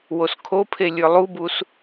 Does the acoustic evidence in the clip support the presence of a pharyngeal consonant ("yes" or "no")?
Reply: no